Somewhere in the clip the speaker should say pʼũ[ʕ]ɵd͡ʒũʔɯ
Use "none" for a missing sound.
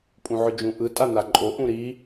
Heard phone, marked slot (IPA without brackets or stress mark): ʕ